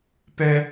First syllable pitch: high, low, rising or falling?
high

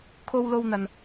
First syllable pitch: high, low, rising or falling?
high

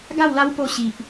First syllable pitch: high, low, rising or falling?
falling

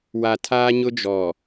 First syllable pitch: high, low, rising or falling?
low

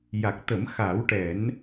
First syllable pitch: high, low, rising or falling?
low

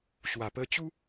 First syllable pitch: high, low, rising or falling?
low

